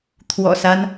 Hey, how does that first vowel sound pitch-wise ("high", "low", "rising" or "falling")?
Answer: low